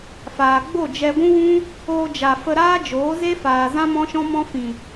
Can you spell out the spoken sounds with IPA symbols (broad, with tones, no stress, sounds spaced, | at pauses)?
f aː˨ ɡ͡b o˦˨ d͡ʒ ɛ˧ ɡʷ ũ˦ w ũ˦ | oː˧ d͡ʒ a˨ f ə˧ ɾ aː˦ d͡ʒ oː˨˦ z e˦ f aː˨ z ã˦ m ɔ̃˦ ʃ ɔ̃˦ m ɔ̃˦ f ĩ˨